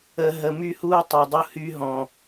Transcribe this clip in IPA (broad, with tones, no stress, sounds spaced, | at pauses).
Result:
ə˨ ɦ ə˨ m y˦ h uː˦ tˤ u˨ dˤ u˦ h y˦ ɦ ɔ̃˨